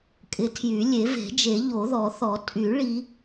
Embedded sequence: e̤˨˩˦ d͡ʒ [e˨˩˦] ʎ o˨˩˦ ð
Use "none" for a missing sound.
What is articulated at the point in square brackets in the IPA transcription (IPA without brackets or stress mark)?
e˨˩˦